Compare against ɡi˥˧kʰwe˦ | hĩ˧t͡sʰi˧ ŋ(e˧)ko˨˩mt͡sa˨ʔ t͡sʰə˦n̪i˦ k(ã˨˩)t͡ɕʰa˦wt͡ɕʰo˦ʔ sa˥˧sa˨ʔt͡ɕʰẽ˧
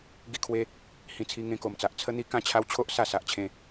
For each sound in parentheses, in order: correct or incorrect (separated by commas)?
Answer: incorrect, incorrect